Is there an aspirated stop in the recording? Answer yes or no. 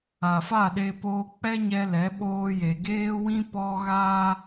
no